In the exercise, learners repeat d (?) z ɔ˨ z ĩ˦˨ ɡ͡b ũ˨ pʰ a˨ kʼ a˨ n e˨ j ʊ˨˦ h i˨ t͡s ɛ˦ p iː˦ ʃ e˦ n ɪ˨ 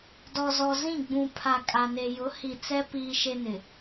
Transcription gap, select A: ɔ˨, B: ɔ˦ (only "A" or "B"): A